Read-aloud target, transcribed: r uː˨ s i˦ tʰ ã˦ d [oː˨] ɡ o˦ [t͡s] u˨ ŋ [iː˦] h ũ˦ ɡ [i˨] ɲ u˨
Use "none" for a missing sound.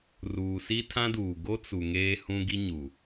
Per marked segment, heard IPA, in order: uː˨, t͡s, eː˦, i˦

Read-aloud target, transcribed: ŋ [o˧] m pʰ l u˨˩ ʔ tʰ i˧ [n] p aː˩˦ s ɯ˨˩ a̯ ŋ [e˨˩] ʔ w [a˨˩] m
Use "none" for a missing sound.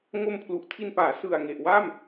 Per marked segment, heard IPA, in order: o˧, n, e˨˩, a˥˩

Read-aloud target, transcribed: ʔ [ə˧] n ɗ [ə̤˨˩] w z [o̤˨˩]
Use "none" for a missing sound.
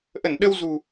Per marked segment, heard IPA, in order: ə˧˩, ə˧, ṳ˨˩

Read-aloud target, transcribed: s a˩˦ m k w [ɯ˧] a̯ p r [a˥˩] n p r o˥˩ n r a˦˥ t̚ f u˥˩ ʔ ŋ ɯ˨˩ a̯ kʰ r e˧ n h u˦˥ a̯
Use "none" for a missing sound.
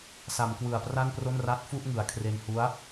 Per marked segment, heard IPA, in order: ɯ˨˩, a˥˩

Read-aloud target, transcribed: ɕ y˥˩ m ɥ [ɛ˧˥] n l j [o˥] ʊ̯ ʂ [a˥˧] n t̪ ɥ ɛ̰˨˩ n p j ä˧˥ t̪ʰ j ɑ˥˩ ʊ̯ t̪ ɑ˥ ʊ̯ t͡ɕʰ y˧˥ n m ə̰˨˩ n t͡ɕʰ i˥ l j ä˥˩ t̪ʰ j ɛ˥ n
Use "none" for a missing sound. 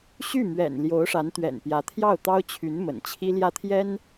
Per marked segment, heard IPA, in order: ɛ̰˨˩, o˧˥, a˧˥

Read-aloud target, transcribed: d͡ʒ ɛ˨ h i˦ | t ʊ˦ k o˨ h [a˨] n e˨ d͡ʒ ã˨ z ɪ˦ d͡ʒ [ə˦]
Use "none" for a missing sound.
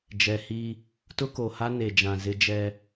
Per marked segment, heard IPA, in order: a˦, ɛ˦

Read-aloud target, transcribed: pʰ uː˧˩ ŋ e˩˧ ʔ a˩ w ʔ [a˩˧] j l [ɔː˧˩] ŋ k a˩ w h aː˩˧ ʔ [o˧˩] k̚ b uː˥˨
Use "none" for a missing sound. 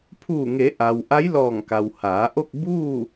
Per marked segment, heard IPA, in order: a˧˥, ɔː˧˩, o˥˨

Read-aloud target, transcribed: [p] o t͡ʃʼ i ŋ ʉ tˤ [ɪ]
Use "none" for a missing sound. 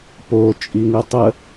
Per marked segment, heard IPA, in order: p, ə

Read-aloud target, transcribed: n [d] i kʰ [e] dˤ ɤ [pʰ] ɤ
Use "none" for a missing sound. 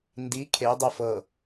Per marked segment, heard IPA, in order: d, e, f

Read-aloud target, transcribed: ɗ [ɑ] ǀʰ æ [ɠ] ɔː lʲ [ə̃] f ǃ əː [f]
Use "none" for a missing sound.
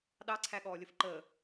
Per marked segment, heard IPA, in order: ɑ, ɠ, ə, none

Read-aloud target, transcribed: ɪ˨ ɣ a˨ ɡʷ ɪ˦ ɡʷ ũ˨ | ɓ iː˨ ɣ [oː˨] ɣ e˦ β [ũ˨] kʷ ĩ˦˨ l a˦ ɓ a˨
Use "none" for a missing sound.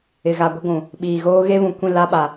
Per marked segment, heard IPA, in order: oː˦, ũ˨

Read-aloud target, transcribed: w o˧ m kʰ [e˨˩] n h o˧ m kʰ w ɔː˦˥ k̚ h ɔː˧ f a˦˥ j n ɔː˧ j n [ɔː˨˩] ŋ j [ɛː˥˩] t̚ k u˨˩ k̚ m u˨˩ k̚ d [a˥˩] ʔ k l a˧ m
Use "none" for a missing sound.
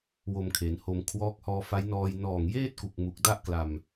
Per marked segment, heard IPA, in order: e˩˦, ɔː˨˩, eː˥˩, a˥˩

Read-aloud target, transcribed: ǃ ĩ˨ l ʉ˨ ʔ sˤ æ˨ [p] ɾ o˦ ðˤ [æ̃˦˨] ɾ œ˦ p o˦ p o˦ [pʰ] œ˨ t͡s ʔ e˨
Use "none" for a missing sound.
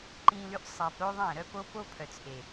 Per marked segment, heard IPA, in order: p, æ̃˦˨, pʰ

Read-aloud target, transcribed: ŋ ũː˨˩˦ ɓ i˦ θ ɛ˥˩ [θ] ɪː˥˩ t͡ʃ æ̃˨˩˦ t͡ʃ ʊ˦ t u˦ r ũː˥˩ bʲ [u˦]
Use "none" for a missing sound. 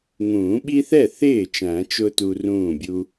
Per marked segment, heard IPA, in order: θ, u˦

